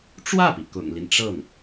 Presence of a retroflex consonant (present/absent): present